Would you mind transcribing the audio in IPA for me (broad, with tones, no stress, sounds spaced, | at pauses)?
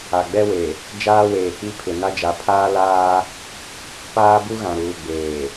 a˨ ɡ͡b ɛ˦ w e˨ | d͡ʒ aː˦ w eː˨ k͡p i˦ pʰ ɪ˨ n a˦ d͡ʒ a˨˦ pʰ aː˦ l aː˦ | p aː˦ b u˦ ɣ ã˨ ɾ uː˨ ɡ͡b eː˨